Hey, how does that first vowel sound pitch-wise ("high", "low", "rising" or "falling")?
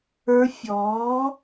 rising